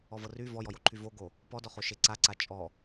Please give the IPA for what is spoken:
ɔ v ɤ r y v ɔ j ɔ j o ǃʰ y v o ɡ o | p ɔ d ɔ χ o ʃ e ǀ a ǀ a t͡ʃʼ ɔ

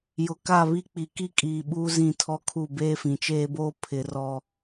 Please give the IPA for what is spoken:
j ʊ˨ k a˦˨ β i˦ k͡p i˨ k i˦ kʼ iː˨ ɓ uː˦ z ĩ˦˨ tʰ ɔ˦ kʰ u˦˨ b eː˦ f ĩ˨ t͡ʃ eː˦ b oː˦ pʰ ɪ˨˦ r ɔ˦

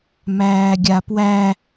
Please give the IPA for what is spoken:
m æː ɡʲ a p w æ

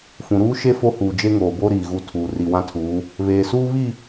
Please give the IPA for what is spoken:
f ũ˨ ɾ uː˦ ʃ e˦ f o˦ h uː˨ d͡ʒ e˦ ŋ oː˨ b o˦ ɾ iː˨ ɣ u˦˨ tʰ uː˨ r i˨ w ã˦ tʰ uː˨˦ | β eː˨ s uː˦ β i˦˨

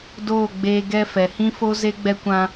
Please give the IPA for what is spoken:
d oː˦˨ ɡ͡b eː˧ ɡ ɛ˧ f ɛ˨ h ĩ˦ f o˦ z e˦ ɡ͡b ɛ˧ kʷ ã˧

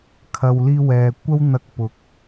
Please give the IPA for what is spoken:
kʰ ɐ˨ w l iː˧ w ɛː˨ kʷ ɐ˥ w n̪ ɐ˧ k̚ p ʊ˨˥ k̚

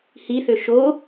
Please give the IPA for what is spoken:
h i θ ø ʃ o

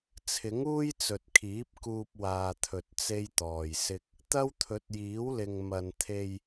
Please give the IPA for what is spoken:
t͡sʰ ɪ˨˥ ŋ uː˥ j t͡s ɵ˨ t̚ kʰ iː˨˥ p̚ k uː˧ p̚ w aː˨ t̪ʰ ɵ˨ t̚ t͡s e˥ j t̪ ɔː˨ j s ɪ˥ k̚ | t̪ ɐ˥ w t̪ʰ ɵ˨˥ t̚ j iː˨˥ w l ɪ˨ ŋ m ɐ˨ n t̪ʰ e˧ j

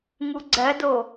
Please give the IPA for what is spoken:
ŋ u ɡ͡ǀ ɜ d o

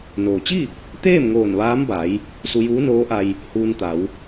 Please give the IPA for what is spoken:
n oː˩ t͡ɕ i˥˨ | t̪ eː˥˨ m ŋ oː˧˩ n ʋ aː˧˥ m b a˩˧ j | s u˧ j uː˧˥ n oː˧˥ ʔ a˧ j | h uː˧ n t̪ a˩˧ w

